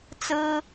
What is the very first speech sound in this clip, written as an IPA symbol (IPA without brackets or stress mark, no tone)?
t͡s